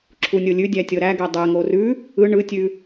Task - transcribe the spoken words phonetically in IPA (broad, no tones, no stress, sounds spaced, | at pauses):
ǁʰ u nʲ o lʲ ʉ dʲ æ tʲ ɤ ɾ æ ɡ ɛ dˤ ɛ ŋ o r ʉ | ɯ ɳ ɯ tʲ ʉ